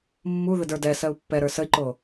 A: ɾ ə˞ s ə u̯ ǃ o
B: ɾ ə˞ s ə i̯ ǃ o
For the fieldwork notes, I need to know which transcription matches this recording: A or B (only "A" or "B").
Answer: B